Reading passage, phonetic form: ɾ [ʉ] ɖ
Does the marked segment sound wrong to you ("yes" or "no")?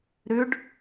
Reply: no